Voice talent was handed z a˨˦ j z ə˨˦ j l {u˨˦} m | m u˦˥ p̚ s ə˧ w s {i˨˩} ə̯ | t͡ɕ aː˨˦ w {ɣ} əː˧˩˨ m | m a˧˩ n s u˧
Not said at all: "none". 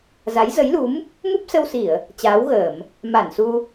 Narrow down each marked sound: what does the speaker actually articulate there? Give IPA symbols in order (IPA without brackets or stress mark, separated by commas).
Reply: u˨˦, i˧˩˨, ɣ